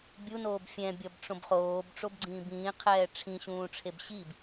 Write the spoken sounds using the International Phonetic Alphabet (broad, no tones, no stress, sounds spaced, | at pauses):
bʲ u n oː b fʲ ɛ̃ bʲ ʌ b ʈ͡ʂ õ b χ oː b ʈ͡ʂ o b ɡ͡ǀ ĩː b ĩː qʰ ɛː ʈ͡ʂʰ ĩ ɕ ũː ʈ͡ʂʰ e b ɕ i b